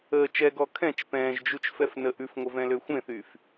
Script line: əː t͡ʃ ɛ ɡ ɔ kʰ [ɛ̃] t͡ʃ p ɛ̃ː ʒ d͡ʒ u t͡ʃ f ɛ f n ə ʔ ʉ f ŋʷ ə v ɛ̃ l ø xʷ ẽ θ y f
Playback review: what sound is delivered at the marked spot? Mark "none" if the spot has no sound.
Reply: ɛ̃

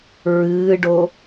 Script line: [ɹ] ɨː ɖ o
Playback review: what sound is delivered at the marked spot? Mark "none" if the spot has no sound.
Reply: ɹ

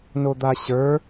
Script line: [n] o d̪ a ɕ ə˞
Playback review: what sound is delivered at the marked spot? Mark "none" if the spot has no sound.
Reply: n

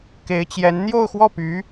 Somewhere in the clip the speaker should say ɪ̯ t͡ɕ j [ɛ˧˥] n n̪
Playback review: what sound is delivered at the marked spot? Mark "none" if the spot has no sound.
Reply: ɛ˧˥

